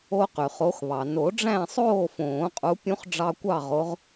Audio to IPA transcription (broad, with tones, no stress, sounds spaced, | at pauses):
o˦ q y˩ χ o˨˦ x β ɑ˩ n o˨˩˦ ɖ͡ʐ æ̃˥˨ sˤ oː˥˨ f õː˨˩˦ qʼ u˨˦ pʲ ũ˦ χ ɖ͡ʐ ɑ˦ kʷ ɑ˥˨ ʁ o˨˦ ʁ